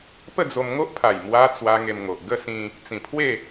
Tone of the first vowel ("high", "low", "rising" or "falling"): falling